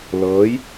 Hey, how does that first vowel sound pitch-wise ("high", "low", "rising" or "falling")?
rising